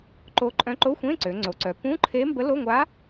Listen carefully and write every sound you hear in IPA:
ǃ o˧˥ ǃʼ œ̃˧˥ ǃ o˧˥˧ xʷ ẽ˧˥˧ ǀ ø˩˧ ŋ͡ǀ o˩˧ ǀ œ˩˧ p ũ˧˥˧ ǃʰ e˧˥ m b ə˧˥ l o˧˥˧ ŋʷ a˧˥

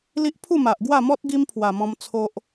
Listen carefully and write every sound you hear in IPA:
l i˦ ʔ pʰ u˥˧ m a˨ ʔ ɡ w a˥˧ m ɔ˦ t̚ ɡ i˦ m pʰ w a˨˩ m ɔ̃˧ m t͡sʰ o˦ ʔ

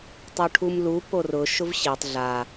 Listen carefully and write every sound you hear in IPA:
tˤ o ʈʰ u m l u p o r ʊ ʃ ʊ v ɕ e tˤ ɮ a

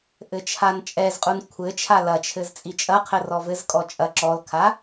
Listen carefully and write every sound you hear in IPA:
ʔ ɘ t͡ʃʰ a n t͡ʃʼ ɛ z qʼ u n kʷʰ ɘ t͡ʃʰ a l ɐ t͡ʃʰ ɘ z t͡sʼ i t͡ʃʼ ɐ qʰ ɘ r ɔ v ɘ z kʼ ɔ t͡ʃʼ ɐ ǁ ɔ l kʰ a

